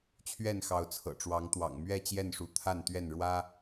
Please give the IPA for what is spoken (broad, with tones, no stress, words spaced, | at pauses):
t͡ɕʰɥɛ˥˨n xɑ˨˦ʊ̯t͡sʰɤ̰˨˩ ʈ͡ʂwɑ˨˦ŋt̪wɑ̰˨˩ŋmɥɛ˥˨t͡ɕjɛ˥˨n ʂu˨˦t̪ʰa˥˨nt̪ɥɛ˥˨n ɻwä˦